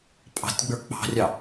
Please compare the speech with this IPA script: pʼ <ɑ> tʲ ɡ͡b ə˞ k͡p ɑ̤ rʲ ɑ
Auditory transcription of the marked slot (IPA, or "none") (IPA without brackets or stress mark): ɑ̤